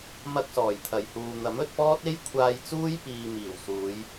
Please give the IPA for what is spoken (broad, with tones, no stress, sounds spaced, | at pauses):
m ɐ˧ k̚ s ɔː˨˩ j t̪ʰ ɐ˨˩ j h uː˨ n̪ ɐ˨˥ m ɵ˧ t̚ p ɔː˥ t̚ e˥ j kʷʰ aː˧ j t͡s uː˥ j p iː˨ m iː˨˩ w s uː˨˧ j